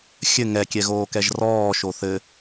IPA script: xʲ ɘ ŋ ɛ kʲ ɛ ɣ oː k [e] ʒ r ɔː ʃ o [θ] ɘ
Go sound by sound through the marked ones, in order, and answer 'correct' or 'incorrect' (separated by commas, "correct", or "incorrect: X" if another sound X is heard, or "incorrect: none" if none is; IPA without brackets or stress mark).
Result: incorrect: ɛ, correct